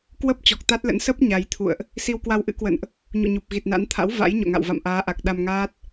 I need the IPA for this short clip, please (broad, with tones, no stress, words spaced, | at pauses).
kwə˦˥p̚ t͡ɕɔ˨˩k̚t̪a˦˥t̚lə̰˧˥n sə˦˥p̚ ɲa˨˦jt̪ʰṵ˧˨ə̯ʔ | si˧wkwa˧wʔɨ̰˧˥ kwə̰˧˨nʔ | ɲṵ˧˨ɲu˨˩p̚ɣi˨˩t̚na̰˧˥n t̪ʰa̰˧˥w va̰˧˥j ɲo̰˧˨ŋa̰˧˨w va̰˧˨mʔaː˨˦ʔa˨˩k̚ ɗa˧mŋaː˦˥t̚